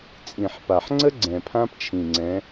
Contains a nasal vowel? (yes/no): yes